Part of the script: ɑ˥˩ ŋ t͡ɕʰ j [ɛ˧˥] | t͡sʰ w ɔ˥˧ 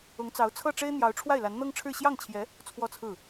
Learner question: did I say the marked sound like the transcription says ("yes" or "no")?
yes